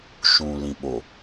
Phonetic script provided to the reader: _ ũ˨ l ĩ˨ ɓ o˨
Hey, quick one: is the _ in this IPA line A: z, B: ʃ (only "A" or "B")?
B